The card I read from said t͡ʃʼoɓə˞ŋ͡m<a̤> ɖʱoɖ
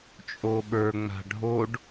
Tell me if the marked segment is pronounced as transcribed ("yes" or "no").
yes